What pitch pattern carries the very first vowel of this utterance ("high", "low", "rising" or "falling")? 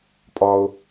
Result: high